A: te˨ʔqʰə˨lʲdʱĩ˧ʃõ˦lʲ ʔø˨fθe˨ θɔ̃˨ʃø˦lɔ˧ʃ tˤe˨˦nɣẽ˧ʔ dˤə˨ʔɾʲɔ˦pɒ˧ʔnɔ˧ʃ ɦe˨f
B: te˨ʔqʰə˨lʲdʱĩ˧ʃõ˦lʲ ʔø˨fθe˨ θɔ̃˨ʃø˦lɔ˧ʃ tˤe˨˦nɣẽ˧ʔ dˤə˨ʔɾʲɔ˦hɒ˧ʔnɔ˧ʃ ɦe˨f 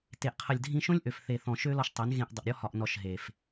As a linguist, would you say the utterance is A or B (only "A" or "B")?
B